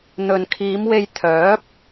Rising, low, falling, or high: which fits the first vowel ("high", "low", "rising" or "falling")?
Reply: low